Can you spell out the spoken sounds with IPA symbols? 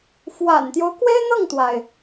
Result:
fwa̰˨˩nt̪jo˦ʊ̯ kwe˥ɪ̯n̪ɤ˥˩ŋt̪wa˩ɪ̯

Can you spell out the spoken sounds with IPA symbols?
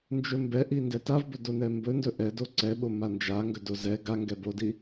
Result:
nd͡ʒɵmbɛʔi ndɛtavbɵ donɛmbɵndɵ ʔɛdo ǀɛɓo mand͡ʒa ŋɡɵdozɛ ɡaŋɡɛ bodi

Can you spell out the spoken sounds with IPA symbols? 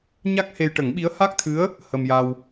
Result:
ɲa˦˥k̚he˧j ʈə˨˩˦ŋɓi˧˥ə̯ ha˦˥k̚t̪ʰɨ˧˥ə̯ | hə˧mja˧w

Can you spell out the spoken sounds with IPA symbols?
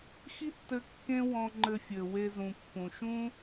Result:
xi˥tːɘ˧ kːẽ˥wɔ̃˧ŋ͡ǃɘ˧fʲɘ˩ we˧zũ˩pːũ˩ ʃũ˥

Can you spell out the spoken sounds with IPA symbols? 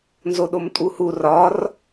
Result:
nzoɗomtʼuhu rɒr

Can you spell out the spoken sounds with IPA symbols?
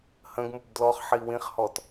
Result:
hə̃ɡmub dlɔχħi wĩχhɔt

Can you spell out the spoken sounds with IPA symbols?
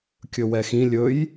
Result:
kʲɵwɛxĩ lʲɵj

